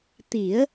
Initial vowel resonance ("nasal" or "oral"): oral